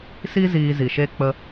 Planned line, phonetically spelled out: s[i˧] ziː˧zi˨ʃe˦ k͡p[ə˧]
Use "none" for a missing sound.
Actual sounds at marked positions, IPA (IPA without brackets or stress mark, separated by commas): i˧, ə˧